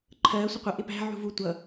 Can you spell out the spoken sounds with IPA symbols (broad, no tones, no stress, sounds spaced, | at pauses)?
ǃʰ ɜː sʷ ə qʷ ʌ ʔ ɪ p æ̤ ʕ ṳ v u tʷ ʌ